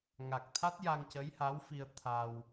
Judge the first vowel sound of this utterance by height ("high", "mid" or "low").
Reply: low